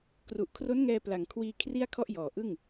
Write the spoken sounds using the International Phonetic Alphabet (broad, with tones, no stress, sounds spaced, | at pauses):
k r u˨˩ ʔ kʰ r o˦˥ n ŋ ɛː˧ p l a˨˩ ŋ kʰ w iː˧ kʰ r i˥˩ a̯ kʰ ɔ˥˩ ʔ j ɔː˨˩ ʔ ɯ˥˩ ŋ